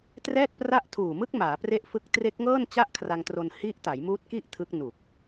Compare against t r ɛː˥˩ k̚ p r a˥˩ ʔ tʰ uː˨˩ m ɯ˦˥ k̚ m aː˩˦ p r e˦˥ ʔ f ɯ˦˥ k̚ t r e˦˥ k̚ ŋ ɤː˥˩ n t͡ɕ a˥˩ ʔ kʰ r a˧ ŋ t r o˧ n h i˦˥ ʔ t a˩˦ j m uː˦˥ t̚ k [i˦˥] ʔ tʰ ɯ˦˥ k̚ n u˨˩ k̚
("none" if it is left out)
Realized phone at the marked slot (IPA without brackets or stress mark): i˥˩